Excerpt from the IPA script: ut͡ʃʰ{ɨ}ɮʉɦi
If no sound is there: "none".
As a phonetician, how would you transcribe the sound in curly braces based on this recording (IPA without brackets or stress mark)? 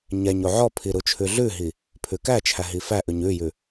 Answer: ʉ